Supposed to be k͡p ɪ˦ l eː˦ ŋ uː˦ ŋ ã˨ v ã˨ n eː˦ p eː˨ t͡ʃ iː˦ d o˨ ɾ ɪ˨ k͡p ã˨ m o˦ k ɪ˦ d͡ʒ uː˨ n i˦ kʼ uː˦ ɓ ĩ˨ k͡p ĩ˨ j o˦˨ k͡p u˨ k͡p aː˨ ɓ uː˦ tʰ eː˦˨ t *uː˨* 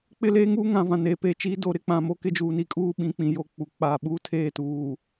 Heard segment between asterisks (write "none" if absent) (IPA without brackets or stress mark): uː˨